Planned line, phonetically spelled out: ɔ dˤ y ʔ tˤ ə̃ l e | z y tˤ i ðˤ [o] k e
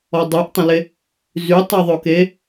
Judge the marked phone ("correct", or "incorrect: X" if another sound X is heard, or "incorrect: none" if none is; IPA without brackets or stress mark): correct